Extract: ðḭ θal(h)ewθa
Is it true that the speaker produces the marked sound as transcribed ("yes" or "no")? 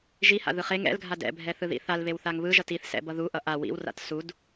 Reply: no